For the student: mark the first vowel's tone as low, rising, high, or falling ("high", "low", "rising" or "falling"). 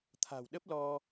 low